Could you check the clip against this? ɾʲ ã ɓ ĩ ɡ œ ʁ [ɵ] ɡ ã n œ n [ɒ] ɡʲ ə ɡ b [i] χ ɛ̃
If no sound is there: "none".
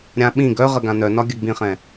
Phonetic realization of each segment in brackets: ə, ɒ, ĩ

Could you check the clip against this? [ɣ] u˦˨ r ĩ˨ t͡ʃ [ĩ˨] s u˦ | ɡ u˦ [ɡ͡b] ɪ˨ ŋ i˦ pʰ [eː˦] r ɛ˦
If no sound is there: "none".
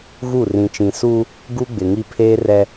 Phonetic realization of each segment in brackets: ɣ, ĩ˨, ɡ͡b, eː˦

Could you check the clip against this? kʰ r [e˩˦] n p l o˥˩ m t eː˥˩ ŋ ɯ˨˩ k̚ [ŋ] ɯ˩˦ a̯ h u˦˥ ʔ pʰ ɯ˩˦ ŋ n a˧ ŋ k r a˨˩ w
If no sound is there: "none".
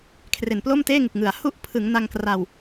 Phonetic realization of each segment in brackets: e˨˩, ŋ

